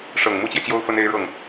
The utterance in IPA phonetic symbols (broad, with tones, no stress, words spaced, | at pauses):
ʂɤ˨˩ŋ mu˥t͡ɕjɛ˨t͡ɕjo˥ʊ̯ fə˥ne˥ɪ̯ ɻɤ˥˩ŋ